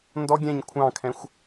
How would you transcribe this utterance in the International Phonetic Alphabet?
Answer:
n d ɔ ɡʲ ɛ̃ ɲ kʷʰ ɑ̃ kʰ ɛ̃ xʷ

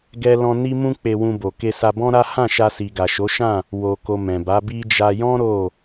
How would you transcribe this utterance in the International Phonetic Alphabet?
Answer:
ɡ ɛ˦ l ɔ̃˦ n i˦ m ũ˦ k͡p e˧ w ũ˧ b o˨ k e˧ s a˧ b ɔ̃˦ ɾ a˦ h ã˦˨ ʃ a˧ s i˨ ɡ a˨ ʃ o˨˦ ʃ ã˦˨ | w o˨ k o˨ m ɛ̃˨ b a˨˦ b i˦ d͡ʒ a˧ j ɔ̃˦ ɾ o˦˨

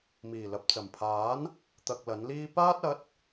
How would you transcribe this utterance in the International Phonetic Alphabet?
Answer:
m iː˨˩ l ɐ˨ p̚ t͡s ɐ˨˩ m pʰ aː˨˥ n | t̪ ɐ˧ k̚ l ɐ˨˥ n l iː˥ p aː˥ t̚ ɐ˨˥ t̚

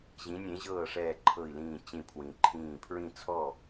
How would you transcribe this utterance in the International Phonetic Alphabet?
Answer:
ʑ ĩ˨˥ nʲ ẽ˨˥ ʑ ɤː˥˨ ʂ ɛː˧˩ ǃʰ ɤ˧˩ i̯ l ĩː˧˩ t͡ɕ ĩ˧˩ pʰ w ĩ˩ ǃʰ ĩː˧˩ pʰ ɹ ĩ˥˨ t͡sʰ ɔ˥˨

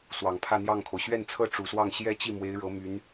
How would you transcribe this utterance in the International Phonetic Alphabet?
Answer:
s w ɑ˨˩ ŋ pʰ ä˥˧ n̪ j ɑ˥˩ ŋ kʰ o˩ ʊ̯ ɕ ɥ ɛ˥˩ n t͡sʰ ɤ˥ ʈ͡ʂ u˨˩ s w ɑ˥˩ ŋ ɕ j ɛ˥ t͡ɕ i˥˩ m w e˧˥ ɪ̯ ɻ ɤ˧˥ m y˧˥ n

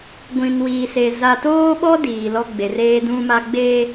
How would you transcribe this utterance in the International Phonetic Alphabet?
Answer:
ɡʷ ĩ˨ n w iː˨ s e˨ z a˨ t oː˦ ɓ ɔ˦ d iː˨ l ɔ˦ ɡ͡b e˨ r eː˦ d ũ˦ m a˦ ɡ͡b eː˦

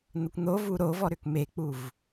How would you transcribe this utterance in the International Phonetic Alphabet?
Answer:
n̪ ə kʷ n̪ o v u ɾ o v ɔ ɾ ʏ k m e k͡p u v

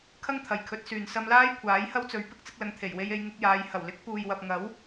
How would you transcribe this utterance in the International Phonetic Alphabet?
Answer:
kʰ ɐ˥ ŋ t̪ʰ ɐ˨ j kʰ ɵ˨˥ t̚ s yː˨ n s ɐ˧ m l aː˥ j kʷʰ aː˨˥ j h ɐ˥ w t͡s ɵ˨˥ ɥ p ɪ˧ k̚ t͡s ɪ˧ k̚ l ɐ˨˧ ŋ t̪ʰ e˨˩ j w e˧ j e˧ j ŋ ɪ˧ k̚ j aː˨˧ j h ɐ˨˩ w l ɪ˨˥ k̚ p uː˨ j w ɐ˨ p̚ ŋ ɐ˨˥ w

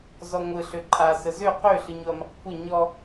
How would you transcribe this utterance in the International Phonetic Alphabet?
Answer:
z ɔ ŋʷ ɯ ɬ ø ǃʼ a s ə z ø q ø ɬ ɯ ɲ o ɐ̯ m e q kʷʰ ɯ ɲ ɔ

